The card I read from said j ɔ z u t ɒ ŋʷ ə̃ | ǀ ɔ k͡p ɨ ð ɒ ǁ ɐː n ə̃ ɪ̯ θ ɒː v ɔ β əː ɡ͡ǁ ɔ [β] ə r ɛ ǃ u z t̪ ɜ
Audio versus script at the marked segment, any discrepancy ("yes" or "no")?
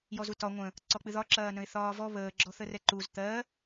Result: yes